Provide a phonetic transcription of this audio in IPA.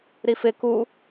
ɾ i f ɪ k u

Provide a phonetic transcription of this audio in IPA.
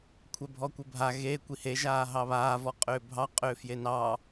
kʷʰ ɛ bʱ ɔ kʷ ɘ bʱ a ɣ e kʷ i h e ʒ aː ɦ ɑ β aː v ɔ qʼ ʏː bʱ ɑ qʼ ʏː f j e n ɑː

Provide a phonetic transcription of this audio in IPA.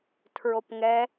tʰ ɹ o p ŋ ɛ

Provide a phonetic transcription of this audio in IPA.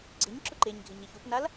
ɡ͡ǀ ɪ ɲ ǁ ʊ ǃ e ɲ ɡʱ ɪ ɲ e ç u p n a l

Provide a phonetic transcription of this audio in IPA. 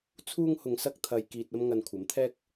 t͡sʰ uː˥ ŋ h ʊ˧ ŋ s ɐ˥ k̚ t̪ʰ ɐ˧ j k iː˧ t̚ ɐ˥ m ŋ ɐ˧ n kʷʰ ɐ˨˥ m t̪ʰ ɛː˥ k̚

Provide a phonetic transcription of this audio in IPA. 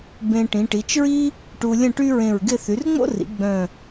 b ẽ˧ ʈ ĩ˩˧ ʈ i˩˧ t͡ʃ ɹ i˥ | ʈ u˧ lʲ ə̃˥˧ ʈ y˥ ɹ ẽ˧˩ ɹ ɡ ɪ˥˧ θ y˩˧ r ŋ͡m o̰˥ r ḭ˩˧ ɡ͡b œ̃˧˩

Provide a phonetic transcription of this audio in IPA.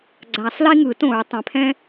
ɡ͡ǀ a˨˩˦ sˤ l i˥ ŋ ɯː˨˩˦ t õ˨˩˦ ɹ tˤ ɛ̃˩ pʰ ɛ̃˥

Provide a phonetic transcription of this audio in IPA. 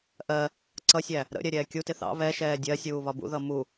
ʔ ɜ | ǀ ʌ sʲ æ | ɾ ə̰ ɾʲ ɛ ɾʲ ɛː kʲ u t ɪ θ ɑ̰ β ɛ ʃ ɛː dʲ ɜ sʲ uː β ɒ b ṵ ð ʌ m u

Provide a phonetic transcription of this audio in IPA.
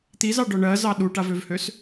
t̪ i z ɑ ɖ ɔ ɳ ɜ z ɑ ɗ u ʈ a v ø v h ø s

